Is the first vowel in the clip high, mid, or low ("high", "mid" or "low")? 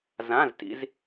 low